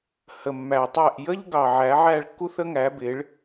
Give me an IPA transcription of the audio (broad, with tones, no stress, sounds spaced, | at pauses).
h ə˨ mː æ˨ tˤ æ˦˨ ʔ j ə˦ ʎ ɡ ɑ˨ ʕ æ˨˦ ʕ æ˦˨ ɭ kː u˦ θ ə˦ ŋ æ˨˦ b ɪ˨˦ ɭ